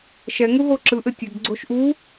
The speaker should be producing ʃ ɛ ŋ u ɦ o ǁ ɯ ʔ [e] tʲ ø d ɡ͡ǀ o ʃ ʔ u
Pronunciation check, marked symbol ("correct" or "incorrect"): incorrect